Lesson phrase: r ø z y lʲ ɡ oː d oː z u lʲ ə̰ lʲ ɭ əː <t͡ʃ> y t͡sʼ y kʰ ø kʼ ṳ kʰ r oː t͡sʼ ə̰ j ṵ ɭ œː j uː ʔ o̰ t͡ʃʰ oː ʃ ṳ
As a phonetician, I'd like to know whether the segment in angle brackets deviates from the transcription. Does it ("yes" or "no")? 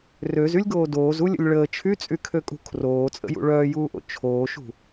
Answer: yes